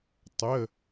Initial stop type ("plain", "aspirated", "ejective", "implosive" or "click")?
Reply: plain